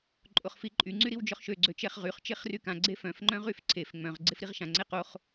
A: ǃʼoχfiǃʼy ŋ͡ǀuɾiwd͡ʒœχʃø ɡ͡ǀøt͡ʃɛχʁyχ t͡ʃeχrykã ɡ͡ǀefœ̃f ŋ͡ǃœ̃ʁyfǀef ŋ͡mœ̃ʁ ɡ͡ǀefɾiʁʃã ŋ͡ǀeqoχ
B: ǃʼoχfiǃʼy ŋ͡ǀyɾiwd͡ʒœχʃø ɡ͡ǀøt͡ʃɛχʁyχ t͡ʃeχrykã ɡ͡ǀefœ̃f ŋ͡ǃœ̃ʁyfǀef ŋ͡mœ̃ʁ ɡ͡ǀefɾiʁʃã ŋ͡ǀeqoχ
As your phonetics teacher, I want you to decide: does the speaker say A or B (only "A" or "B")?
B